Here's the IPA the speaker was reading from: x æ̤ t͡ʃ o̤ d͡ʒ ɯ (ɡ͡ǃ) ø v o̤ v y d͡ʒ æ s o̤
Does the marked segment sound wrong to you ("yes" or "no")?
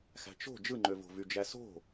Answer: yes